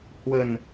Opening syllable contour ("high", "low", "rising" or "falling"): low